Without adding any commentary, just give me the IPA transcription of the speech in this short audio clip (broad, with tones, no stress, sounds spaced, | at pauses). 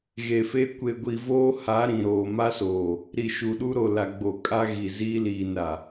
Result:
ɣ e˨ f e˦ kʷ e˨ ɡʷ i˨ v oː˦ h a˨˦ ɾ ĩ˨ ɾ oː˨ m a˦ s oː˨ | ɾ i˨ ʃ u˨ ɗ u˦ ɾ o˨ l a˨ ɡ͡b o˨ kʼ a˦ ɣ i˨ z iː˦ l iː˨ n ɾ a˨